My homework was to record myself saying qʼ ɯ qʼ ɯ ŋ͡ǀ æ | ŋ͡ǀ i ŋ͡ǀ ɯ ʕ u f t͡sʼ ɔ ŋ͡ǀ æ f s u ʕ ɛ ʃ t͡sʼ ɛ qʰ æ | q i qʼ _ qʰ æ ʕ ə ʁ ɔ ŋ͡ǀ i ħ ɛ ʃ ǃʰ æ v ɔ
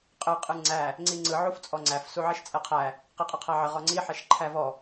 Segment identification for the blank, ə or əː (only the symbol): ə